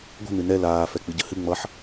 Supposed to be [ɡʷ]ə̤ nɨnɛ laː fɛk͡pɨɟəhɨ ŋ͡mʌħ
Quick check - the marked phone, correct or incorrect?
correct